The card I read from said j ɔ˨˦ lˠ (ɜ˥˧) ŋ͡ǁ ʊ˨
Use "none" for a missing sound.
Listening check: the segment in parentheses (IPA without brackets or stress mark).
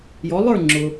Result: ə˞˥˧